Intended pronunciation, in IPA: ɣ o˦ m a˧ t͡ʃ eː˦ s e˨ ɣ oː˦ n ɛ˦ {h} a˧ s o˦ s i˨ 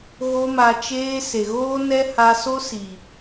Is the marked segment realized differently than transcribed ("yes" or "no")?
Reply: no